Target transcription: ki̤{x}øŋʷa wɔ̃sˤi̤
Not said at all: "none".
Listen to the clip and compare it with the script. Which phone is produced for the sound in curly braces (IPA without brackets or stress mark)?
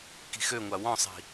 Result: x